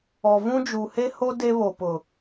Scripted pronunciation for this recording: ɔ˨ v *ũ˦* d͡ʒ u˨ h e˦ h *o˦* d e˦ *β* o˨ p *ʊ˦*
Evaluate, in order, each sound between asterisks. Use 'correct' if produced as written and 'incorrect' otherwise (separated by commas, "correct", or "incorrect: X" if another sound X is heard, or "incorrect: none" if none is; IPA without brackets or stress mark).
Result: correct, correct, correct, incorrect: ʊ˨